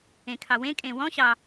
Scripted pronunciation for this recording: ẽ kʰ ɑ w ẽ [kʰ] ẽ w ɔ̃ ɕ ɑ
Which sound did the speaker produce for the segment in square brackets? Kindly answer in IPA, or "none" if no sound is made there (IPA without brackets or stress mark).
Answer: kʼ